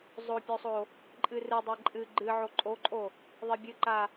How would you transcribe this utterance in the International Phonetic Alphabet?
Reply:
zˤ o pʲ o sˤ o | ǃʼ ɨ r ɨ dˤ e ǃʼ ɨ ɡ͡ǃ ɨ ʕ o ǃʼ o ǃʼ o | ðˤ e bʲ ɨ ǃ a

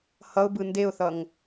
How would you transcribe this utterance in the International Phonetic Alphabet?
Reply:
h ʌ ʊ̯ b ɯ n d e ʊ̯ θ ʌ ŋ

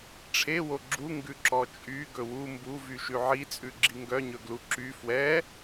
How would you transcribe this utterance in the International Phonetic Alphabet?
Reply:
ʈ͡ʂʰ e w o ɡ͡ǁ u ŋ ɡ ʉ ǁ ɔ t͡ʃʼ y ɡ ɵ w u m b u v y ʃ ʉ ʕ i t͡sʼ ʉ ɡ͡ǁ i ŋ ɡ œ ɲ ɵ ɡ l u ǁ y f w ɛ

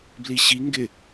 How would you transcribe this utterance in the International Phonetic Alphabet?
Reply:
b l i ɕ i ŋ ɡ ɪ

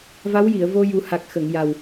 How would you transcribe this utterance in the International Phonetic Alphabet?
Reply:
v a˧˥ w j i˨˩˨ ə̯ v o˧ j u˨˩ h a˨˩ k̚ x ə˨˩˨ ŋ j a˨˩ w

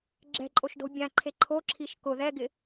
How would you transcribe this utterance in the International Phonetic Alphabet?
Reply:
ɡ͡ǁ ɛ̤ ǃʼ o ʃ d o̤ bʲ ã ǃʰ e ǃʰ o ǁʰ i ʃ k ʊ ð ɛ ɡ ɪ

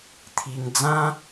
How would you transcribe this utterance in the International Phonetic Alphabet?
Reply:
t̪ʰ i˧ ŋ d͡z ã˦

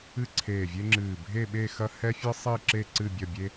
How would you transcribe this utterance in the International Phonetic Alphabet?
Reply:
ɨ˥˧ ǀʰ eː˧˩ vʲ e˥ ŋ͡ǁ ɨː˧˩ bʱ e˥˧ ɓ e˥˧ x ɐ˥ h ɛ˥ fʲ ɨ˥ sˤ i˥˧ ǁ e˥˧ ǀ ɨ˥˧ bʲ ɐ˥˧ bʲ e˥

